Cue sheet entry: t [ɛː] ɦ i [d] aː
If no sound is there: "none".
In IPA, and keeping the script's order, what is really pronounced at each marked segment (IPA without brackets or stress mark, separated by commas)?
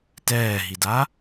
ɛː, d